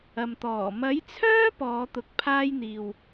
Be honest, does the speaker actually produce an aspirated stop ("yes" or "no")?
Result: yes